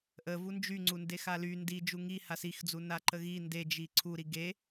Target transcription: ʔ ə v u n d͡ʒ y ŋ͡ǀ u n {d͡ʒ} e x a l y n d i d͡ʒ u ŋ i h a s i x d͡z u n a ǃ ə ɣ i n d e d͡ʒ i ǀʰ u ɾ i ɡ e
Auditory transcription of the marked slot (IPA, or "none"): d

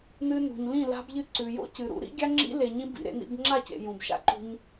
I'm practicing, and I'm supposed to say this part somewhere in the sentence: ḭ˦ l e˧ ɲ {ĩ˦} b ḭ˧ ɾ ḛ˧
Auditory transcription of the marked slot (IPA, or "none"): ĩ˦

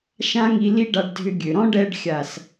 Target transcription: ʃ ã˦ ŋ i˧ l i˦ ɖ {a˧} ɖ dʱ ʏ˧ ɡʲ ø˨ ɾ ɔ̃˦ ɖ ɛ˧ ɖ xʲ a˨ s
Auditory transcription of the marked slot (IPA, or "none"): a˧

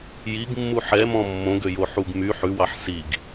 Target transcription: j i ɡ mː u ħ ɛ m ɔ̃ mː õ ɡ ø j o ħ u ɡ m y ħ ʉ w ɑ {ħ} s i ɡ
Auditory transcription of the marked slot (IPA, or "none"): ħ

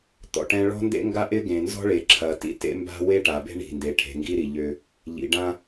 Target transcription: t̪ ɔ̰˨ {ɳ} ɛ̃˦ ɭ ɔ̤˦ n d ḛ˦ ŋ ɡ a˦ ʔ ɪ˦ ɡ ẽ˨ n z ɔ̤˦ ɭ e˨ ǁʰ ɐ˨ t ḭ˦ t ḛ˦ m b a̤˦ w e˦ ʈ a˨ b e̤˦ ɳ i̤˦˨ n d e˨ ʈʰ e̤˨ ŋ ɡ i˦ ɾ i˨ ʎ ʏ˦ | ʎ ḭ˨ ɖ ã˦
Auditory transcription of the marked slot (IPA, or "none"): ʈ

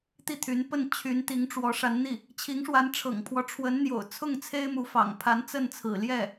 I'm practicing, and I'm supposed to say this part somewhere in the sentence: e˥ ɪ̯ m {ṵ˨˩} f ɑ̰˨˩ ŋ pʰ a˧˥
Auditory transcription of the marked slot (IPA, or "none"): u˧˥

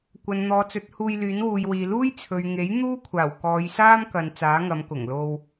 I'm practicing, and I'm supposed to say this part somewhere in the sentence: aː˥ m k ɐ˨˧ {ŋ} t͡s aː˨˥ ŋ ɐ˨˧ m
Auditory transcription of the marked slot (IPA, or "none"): n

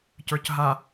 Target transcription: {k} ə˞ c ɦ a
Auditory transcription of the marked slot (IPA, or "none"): c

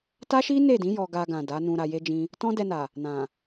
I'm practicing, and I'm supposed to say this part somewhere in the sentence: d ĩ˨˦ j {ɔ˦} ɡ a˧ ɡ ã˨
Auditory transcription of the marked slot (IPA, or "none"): ɔ˧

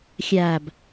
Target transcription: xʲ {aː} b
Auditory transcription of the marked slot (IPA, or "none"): aː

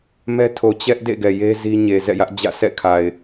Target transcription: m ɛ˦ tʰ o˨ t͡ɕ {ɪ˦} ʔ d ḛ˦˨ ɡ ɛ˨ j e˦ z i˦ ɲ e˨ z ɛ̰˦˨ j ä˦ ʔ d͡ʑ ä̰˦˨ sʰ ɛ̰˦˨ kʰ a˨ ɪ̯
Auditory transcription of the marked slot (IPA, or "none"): ɛ˦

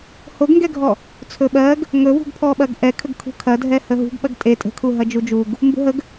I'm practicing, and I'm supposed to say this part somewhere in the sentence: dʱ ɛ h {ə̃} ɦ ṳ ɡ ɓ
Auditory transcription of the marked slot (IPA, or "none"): ə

